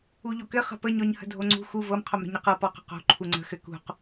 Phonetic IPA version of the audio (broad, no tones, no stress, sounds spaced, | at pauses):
u ʎ o k ɘ χ ə̤ p ə ɲ ɔ ɲ h ə̤ dʱ o ŋ͡ǀ ṳ x u v ɤ m qʰ o m ɾ ə̤ ɲ ə q ɤ p ɔ q ə̤ q o̤ ǃʰ u ŋ͡ǀ ə̤ x ɘ k ṳ q